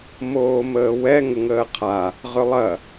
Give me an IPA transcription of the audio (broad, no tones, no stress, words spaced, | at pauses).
moːməːwɛ ŋəŋəːqʰa | ʁʏlˠɐ